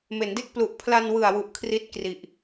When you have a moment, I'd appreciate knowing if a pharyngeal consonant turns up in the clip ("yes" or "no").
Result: no